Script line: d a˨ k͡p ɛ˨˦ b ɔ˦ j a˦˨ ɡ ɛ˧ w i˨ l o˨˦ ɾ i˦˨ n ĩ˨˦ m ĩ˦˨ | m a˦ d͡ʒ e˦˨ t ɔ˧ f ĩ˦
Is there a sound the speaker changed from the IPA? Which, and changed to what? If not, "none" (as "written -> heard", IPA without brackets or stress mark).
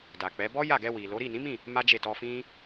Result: none